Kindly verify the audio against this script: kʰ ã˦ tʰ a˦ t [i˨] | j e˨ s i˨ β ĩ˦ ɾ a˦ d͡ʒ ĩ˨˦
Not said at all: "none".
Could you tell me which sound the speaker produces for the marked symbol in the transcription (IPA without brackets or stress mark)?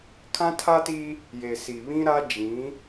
i˦